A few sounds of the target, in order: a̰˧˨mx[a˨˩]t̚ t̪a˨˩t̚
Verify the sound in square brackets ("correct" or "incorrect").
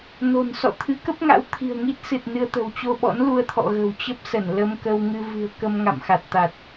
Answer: correct